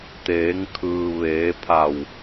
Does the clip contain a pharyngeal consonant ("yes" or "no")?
no